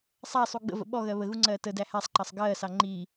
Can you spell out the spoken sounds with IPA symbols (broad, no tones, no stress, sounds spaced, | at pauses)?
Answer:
sˤ æ sˤ u ɡ͡b ə̰ v ə̰ ɓ ɔ ɣ ɜ β ə ɣ u ŋ͡ǀ ɜː t ə d æ h æ sˤ ǃ ɑ sˤ ɡ ɜː s ɑ ŋ͡ǃ iː